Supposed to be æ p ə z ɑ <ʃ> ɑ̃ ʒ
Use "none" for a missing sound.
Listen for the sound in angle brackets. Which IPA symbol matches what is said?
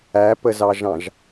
ʒ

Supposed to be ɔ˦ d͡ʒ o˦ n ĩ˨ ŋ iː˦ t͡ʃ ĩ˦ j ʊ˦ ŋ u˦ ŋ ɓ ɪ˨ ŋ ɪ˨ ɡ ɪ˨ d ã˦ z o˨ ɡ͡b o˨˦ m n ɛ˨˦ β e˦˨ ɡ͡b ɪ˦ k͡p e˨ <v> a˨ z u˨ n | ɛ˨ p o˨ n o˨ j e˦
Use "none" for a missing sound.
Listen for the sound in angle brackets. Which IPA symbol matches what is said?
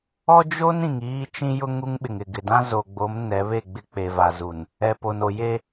v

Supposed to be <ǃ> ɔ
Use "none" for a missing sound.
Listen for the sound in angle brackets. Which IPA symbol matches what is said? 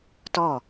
t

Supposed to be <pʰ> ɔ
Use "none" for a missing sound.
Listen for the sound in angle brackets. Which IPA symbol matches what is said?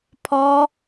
pʰ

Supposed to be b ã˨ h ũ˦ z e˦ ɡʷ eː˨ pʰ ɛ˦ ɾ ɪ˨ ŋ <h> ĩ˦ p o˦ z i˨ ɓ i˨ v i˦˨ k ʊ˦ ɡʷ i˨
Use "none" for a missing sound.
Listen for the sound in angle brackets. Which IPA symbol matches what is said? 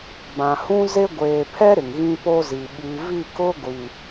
ɣ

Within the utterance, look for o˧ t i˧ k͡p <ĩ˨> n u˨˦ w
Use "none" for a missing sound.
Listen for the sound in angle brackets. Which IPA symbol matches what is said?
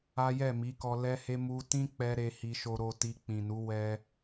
ĩ˨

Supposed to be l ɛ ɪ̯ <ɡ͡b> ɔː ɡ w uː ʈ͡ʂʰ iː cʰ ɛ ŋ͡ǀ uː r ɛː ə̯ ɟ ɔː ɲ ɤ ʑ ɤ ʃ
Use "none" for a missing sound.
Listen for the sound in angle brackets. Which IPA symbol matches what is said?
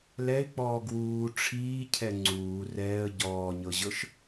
k͡p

